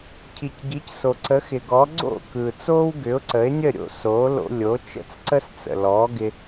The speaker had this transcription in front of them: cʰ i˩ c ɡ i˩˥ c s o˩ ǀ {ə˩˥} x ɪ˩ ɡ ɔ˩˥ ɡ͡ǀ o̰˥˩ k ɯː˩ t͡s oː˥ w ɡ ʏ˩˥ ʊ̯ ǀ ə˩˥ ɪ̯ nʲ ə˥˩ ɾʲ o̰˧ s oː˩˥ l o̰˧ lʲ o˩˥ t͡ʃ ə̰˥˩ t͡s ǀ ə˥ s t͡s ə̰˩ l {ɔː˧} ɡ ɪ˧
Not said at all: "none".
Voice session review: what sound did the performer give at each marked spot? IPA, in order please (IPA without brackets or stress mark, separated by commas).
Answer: ə˩˥, ɔː˩˥